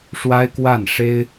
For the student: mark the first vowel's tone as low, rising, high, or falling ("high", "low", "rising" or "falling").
high